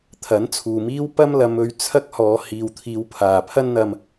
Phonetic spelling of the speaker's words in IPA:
t̪ʰɐ˨˥nt͡sʰuː˨miː˥w pɐ˥mlɐ˨˧mɵ˨˧ɥ t͡sʰɐ˥k̚hɔː˨˧ hiː˨wt̪ʰiː˨˧wpʰaː˨˩ pʰɐ˥nn̪ɐ˧m

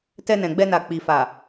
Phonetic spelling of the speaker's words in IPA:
tɛ˧nɛ̃˨ɡ͡bɛ˧na˨ k͡pi˨fa˨

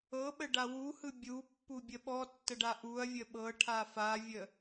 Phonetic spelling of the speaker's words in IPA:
ɤɓə ɖawuhɯ bʲupːu bʲəɓɔtːə ɖaʔuɐ̯vʲə ɓɤ ʈʰafavʲə

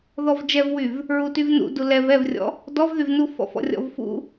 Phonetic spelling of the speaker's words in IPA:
ðɔvd͡ʒɛvwyv | ɹutyvnṵ dulɛv ɛvrʲɔ̰ | dɔvðyvnu fɔ̰fɔ̰rʲɔ̰vfṵ

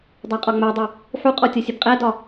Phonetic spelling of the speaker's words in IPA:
dˤæqʼɒŋ͡mædˤu | ħuqʼɔ tʲɒsʲɘbqʼædɒ

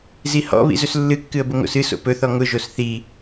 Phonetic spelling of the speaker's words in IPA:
zihɔ̰βḭ zɵslːɨkːɨə̯ bʊŋo̰sɨso̰ pɵθɔ ŋʊʒos θi

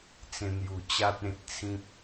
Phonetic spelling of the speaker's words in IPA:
t͡sẽ˧n̪ju˨˩ t͡ɕa˦t̚ẽ˨t̚t͡sʰĩ˦p̚

